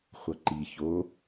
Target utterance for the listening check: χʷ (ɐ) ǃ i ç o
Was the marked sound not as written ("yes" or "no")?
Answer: no